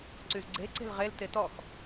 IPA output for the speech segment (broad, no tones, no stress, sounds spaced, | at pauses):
ǀ y z ɡ͡ǀ e ǀ e̤ l ʁ e l t e t ɔ x